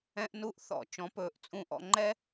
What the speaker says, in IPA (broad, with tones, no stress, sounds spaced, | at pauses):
ɛ̃˧ ʔ n u˧ ʔ θ ɔ̰˨ t͡ʃ ɔ̃˨˦ p ɵː˨˦ ʔ t͡sʼ ũ˧ ʔ ɔ̰˧ ŋ͡ǃ ɛ˦